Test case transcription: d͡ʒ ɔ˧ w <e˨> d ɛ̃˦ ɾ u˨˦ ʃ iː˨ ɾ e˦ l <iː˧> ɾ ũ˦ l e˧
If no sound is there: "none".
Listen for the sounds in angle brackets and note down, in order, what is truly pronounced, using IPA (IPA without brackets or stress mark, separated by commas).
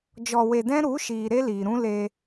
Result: e˧, iː˨